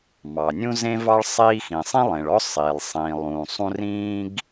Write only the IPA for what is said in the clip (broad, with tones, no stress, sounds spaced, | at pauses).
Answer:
m ɑ˩ nʲ ũ˥ z ẽ˥ v ɑ˥ ɭ sˤ iː˥ x ĩ˩ sˤ ĩ˥ lˠ ẽ˩ ɭ ɔ˥ sˤ iː˩ lˠ sˤ ĩː˩ lˠ ũː˩ sˤ ũ˥ r ĩː˥ ɡ